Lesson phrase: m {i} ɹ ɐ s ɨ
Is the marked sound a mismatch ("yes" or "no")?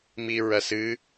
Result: no